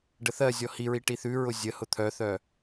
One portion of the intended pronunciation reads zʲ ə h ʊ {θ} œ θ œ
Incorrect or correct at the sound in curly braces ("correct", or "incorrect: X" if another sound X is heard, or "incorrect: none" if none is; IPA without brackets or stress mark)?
incorrect: t̪ʰ